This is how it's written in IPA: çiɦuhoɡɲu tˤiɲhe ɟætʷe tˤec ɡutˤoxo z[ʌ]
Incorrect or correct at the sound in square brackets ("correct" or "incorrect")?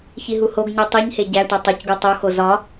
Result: incorrect